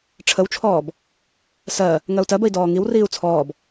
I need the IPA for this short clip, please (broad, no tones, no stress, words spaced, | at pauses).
ʈ͡ʂʰəwt͡ʃʰɔːb | sɜ | ŋɜu̯tɜbəi̯ dɔːŋiwriːu̯ t͡sʰɔːb